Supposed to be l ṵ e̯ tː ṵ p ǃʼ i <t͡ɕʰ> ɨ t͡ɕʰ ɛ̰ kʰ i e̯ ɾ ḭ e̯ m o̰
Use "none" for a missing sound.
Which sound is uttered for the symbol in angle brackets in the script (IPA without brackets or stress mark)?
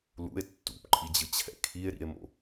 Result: d͡ʑ